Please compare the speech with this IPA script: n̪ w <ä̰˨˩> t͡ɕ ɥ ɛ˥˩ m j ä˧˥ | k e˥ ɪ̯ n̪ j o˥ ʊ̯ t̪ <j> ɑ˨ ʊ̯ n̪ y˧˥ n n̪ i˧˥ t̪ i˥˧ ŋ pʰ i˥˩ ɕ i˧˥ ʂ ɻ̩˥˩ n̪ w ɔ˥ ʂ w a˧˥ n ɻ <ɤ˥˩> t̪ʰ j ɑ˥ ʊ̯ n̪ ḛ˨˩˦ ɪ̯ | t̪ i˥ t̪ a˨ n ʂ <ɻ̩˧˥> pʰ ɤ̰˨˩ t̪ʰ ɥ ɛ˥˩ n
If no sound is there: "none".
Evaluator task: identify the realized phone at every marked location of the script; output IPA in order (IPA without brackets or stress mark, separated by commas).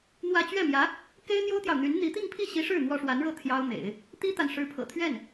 ä˥˧, j, ɤ˥˩, ɻ̩˧˥